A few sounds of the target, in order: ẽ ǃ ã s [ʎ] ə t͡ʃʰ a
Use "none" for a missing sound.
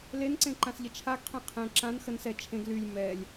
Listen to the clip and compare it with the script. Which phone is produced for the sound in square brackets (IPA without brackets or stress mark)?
ʎ